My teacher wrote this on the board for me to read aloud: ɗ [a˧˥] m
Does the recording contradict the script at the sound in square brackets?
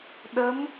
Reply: yes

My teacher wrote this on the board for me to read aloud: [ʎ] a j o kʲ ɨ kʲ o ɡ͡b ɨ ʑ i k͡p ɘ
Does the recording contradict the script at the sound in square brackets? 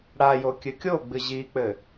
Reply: yes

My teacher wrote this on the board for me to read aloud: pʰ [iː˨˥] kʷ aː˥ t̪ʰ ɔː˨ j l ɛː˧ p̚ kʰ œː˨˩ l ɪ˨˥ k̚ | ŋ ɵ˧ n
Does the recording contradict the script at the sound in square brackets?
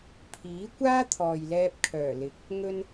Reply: no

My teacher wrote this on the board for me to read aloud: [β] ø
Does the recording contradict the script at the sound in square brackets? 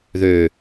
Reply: yes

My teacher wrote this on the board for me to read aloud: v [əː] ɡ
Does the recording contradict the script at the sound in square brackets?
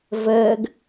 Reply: no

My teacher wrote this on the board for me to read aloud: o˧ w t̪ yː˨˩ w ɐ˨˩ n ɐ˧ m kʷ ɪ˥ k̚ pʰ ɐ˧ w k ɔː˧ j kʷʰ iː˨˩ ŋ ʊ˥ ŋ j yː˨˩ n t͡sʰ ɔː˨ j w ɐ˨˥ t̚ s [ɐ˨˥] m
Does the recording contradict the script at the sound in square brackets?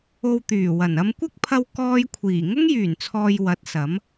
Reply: no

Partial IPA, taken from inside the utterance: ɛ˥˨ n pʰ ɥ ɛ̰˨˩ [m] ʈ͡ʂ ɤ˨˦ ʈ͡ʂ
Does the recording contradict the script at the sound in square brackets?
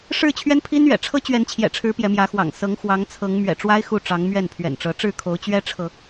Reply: yes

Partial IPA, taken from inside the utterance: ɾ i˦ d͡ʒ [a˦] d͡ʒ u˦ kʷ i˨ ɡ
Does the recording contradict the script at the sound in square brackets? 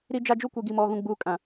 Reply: no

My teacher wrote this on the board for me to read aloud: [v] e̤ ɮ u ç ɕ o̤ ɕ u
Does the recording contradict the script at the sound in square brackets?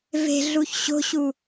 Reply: no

